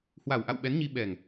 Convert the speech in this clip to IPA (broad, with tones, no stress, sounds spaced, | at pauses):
h w a˨˩ w ʔ a̰˧˨ w ɓ ɛ˨˦ n ɲ i˧ ɓ ɛ˨˩ ŋ